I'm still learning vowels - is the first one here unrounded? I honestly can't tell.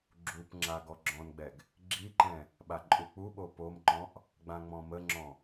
no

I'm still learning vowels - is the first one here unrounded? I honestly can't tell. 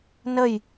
yes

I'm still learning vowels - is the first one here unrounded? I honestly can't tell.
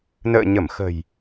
yes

